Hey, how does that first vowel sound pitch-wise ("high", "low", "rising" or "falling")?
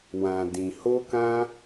low